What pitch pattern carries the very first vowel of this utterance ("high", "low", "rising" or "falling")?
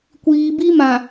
low